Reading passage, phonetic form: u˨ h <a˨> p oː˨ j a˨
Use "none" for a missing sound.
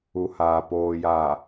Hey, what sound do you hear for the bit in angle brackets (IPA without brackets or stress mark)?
aː˨